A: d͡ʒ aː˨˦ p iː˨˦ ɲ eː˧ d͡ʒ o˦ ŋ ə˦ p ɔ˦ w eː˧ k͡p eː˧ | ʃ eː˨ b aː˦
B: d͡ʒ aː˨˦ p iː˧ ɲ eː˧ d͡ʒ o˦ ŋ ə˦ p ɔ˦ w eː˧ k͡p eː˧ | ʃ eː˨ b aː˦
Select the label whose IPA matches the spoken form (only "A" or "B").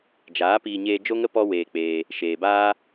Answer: B